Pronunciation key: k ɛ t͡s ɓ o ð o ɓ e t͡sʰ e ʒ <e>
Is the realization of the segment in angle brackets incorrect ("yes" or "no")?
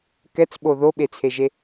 no